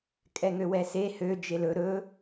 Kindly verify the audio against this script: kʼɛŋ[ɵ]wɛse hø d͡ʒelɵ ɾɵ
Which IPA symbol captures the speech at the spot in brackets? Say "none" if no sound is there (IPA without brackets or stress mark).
ø